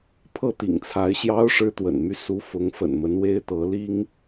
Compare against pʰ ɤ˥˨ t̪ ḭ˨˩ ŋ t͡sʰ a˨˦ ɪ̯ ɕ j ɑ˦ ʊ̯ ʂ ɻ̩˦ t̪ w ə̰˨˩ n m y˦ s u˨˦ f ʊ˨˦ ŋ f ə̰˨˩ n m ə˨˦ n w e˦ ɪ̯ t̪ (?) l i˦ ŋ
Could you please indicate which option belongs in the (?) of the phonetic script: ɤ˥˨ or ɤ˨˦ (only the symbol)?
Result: ɤ˨˦